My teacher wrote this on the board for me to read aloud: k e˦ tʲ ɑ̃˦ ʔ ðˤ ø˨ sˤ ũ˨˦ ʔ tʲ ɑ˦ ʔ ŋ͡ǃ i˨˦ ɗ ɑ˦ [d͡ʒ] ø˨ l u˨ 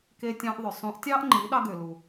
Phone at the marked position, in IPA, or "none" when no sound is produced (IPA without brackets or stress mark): ɡ